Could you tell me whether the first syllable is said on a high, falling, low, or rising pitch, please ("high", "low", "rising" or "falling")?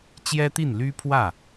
high